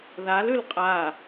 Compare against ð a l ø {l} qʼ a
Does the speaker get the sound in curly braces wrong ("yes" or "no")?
no